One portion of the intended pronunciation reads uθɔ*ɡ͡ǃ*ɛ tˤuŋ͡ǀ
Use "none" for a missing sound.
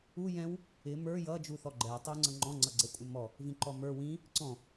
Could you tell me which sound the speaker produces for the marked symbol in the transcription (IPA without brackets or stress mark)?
ɡ͡ǃ